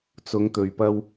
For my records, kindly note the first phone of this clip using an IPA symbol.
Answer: t͡s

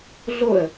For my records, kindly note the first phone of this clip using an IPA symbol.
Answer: ɮ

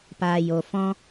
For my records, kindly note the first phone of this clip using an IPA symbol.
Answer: p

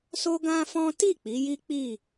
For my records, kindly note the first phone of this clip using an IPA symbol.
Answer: s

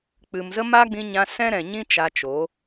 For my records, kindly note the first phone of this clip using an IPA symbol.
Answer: k͡p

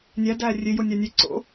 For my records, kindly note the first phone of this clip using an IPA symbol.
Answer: nʲ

